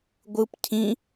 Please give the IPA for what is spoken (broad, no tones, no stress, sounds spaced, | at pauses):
ɡʷ ɯ p cʰ ĩ